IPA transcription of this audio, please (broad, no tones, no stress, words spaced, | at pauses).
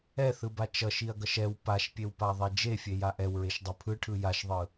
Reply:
ɛθɯba t͡ʃʌʃiɐ̯ɡʌʃ ɛw paʃpʲewpaðˤe d͡ʒefʲeja ʔɛwɹeʃdˤɯ pʰɯʈʰɯ jaʃðˤɯ